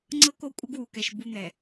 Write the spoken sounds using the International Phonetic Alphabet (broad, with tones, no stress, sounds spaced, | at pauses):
ŋ͡ǀ ɤ˦ k o˦ kʷʼ ə˦ ɡ w u˨ k ɛ˨ ʃ b u˦ n̪ ɛ˨